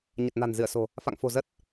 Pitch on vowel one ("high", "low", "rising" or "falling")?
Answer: low